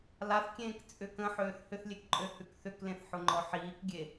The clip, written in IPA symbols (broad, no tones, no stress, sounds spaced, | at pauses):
l a θ kʲ ẽː k t͡sʼ ʏ k ə̃ ħ øː θ h ʏ θ lʲ e k ǃʼ ø h ʉ k θ ʏ k l ẽ θ ħ ʊ ŋ͡ǃ ɔ ħ iː k ɡʲ e